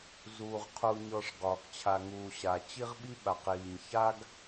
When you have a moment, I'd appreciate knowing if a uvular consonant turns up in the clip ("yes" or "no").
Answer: yes